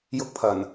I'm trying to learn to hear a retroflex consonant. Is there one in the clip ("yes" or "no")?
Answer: no